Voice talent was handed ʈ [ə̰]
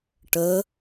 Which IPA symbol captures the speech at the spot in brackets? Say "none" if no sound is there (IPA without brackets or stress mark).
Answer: ə